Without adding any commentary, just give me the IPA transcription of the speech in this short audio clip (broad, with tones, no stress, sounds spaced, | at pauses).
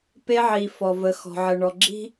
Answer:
p e˦ ʕ i˨ f ɔ˨ v ə˨ x ɔ̤˨ ʕ ə˨ ɳ ɔ˨ ɡ͡ǁ i̤˦